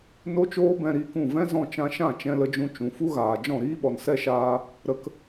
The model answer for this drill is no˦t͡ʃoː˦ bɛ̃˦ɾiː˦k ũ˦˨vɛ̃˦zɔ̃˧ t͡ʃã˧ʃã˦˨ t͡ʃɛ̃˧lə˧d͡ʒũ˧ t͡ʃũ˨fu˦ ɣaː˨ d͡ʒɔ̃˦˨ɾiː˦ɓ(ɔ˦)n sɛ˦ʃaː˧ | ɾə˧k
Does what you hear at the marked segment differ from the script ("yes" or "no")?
yes